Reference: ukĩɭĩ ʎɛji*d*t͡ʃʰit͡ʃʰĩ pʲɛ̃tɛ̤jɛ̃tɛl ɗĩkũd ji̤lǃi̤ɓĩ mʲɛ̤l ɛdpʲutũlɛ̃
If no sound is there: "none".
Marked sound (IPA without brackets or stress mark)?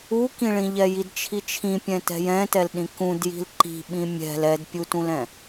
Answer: d